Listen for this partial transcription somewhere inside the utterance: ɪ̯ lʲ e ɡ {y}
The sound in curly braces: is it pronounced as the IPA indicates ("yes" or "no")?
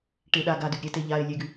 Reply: yes